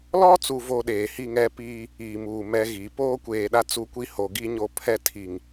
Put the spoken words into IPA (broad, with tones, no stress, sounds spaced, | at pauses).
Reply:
l ɔ˦ t͡s u˨ v o˨ ɗ eː˨ h i˦˨ ŋ ɛ˦ p iː˦ | iː˨ m uː˨ m ɛ˦ ɣ i˨˦ p oː˦ kʷ eː˨ ɗ a˦ t͡s u˦ kʷ i˦ h o˨ ɡ i˦ ɲ o˦ pʰ ɛ˦ tʰ i˨ ŋ